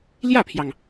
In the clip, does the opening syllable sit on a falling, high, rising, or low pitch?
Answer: falling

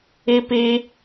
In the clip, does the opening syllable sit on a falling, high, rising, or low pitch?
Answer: high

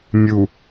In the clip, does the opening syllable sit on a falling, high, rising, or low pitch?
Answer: low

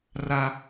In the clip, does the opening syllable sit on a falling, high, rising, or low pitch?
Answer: high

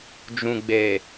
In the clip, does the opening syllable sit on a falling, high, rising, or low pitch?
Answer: low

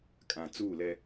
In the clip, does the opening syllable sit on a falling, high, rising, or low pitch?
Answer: low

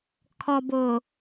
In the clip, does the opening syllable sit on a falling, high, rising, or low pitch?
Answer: low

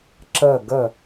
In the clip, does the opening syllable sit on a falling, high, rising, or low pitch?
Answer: falling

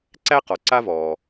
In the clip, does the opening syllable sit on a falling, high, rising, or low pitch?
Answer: high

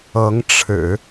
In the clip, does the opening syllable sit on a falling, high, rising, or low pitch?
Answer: rising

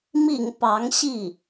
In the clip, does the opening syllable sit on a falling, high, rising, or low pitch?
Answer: low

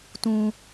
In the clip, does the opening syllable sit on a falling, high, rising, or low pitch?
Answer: low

